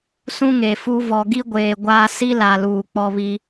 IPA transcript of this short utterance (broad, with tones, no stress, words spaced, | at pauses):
sũ˦ŋe˨fu˦ vɔ˨ɡi˦ɡʷeː˨ ɡʷaː˦ si˦la˨luː˨ k͡pɔ˦βi˦